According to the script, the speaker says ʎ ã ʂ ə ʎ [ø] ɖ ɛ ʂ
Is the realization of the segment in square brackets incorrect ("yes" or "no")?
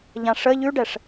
yes